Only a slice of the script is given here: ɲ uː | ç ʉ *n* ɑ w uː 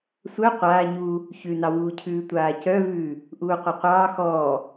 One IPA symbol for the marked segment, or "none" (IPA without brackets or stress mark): n